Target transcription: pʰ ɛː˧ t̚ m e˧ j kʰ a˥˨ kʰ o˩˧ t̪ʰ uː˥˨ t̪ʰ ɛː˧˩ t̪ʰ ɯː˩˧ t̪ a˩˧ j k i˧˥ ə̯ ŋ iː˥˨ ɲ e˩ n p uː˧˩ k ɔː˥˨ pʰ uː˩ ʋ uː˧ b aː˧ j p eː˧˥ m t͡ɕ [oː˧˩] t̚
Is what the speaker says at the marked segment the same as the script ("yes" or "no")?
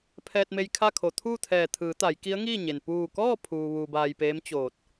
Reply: yes